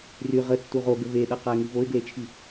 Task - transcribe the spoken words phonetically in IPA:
r y ʁ ə tː u ʁ o ɡ ə v e ɗ ʌ q a ɪ̯ ŋ i v o ɪ̯ ɡ l e t͡ʃʰ i

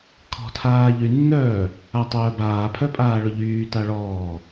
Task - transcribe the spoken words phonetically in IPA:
kʰ ɔ̤ tʰ aː ʎ y nː œː | a tˤ œː b aː pʰ œ pʼ aː ɭ ʊ ʎ yː t a ɭ ɔː

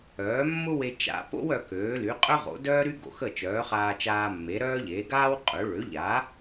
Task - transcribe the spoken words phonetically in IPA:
œː˩˥ mː ʊ˥ w e˧ t͡ʃ a̰˧ p o̰˥ w œ˧ k øː˩˥ l y˩˥ qʼ œ˥ ʁ o̰˩˥ d œː˥ ɾ y˥ ɡ o̰˧ x ə˥˩ t͡ʃ œː˩˥ χ aː˧ t͡ʃ aː˧ mː e˩˥ ɾ œː˥ ʎ eː˩˥ ɡ aː˥ w qʼ ø˩˥ ɭ ø˩˥ ʎ aː˩˥

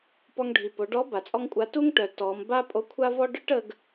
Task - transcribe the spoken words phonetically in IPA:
p ɔ˧ ŋ ɖʱ i˩ p o˩˧ ɖ ɔ˧˥ b a˩ t͡sʼ ɔ˥ ŋ kʷʼ a˧˥ t u˥ ŋ ʈ œ˩ t ɔ˩˧ m b a˥ pʼ o˧˥ kʷʰ a˥ v ɔ˥ ɖ œ˥ ʈ ə˧ ɡ

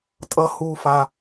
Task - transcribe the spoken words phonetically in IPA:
tʼ ʌ˨ h uː˦ f a˦

